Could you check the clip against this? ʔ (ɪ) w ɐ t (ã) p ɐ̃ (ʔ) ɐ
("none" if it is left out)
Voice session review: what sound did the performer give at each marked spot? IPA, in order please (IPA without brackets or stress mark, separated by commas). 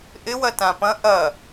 ɪ, ã, ʔ